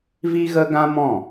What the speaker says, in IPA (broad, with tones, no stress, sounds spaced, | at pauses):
v i˦ ɣ ə˦ ɡ ã˦ m ɔ̃˦˨